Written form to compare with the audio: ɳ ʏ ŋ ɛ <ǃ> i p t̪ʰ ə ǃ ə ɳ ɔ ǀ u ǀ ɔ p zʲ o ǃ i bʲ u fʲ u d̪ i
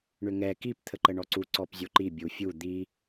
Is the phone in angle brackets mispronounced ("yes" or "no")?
yes